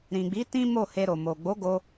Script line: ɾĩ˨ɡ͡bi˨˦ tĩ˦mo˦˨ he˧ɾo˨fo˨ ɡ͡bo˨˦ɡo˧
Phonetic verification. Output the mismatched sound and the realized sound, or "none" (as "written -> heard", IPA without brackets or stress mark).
f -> m